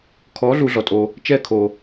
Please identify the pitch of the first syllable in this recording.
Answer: rising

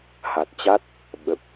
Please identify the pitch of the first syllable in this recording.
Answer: low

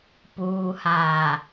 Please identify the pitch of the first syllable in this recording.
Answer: low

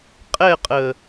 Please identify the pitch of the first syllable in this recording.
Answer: falling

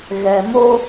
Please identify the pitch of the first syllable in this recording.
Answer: low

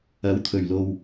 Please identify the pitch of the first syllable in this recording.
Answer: rising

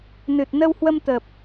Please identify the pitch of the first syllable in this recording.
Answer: low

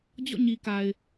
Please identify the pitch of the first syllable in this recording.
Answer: falling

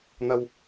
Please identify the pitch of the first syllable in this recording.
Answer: high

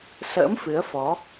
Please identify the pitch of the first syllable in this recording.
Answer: rising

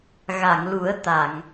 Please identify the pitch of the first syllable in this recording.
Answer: low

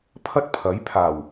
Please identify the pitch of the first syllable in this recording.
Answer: high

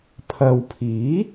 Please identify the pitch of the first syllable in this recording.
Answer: low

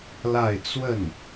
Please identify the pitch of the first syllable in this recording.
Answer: falling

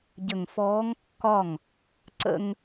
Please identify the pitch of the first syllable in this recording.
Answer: low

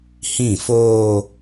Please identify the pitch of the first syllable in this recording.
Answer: falling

